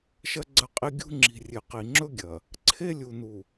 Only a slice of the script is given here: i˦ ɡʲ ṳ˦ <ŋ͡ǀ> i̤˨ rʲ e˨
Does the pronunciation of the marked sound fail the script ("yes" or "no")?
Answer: yes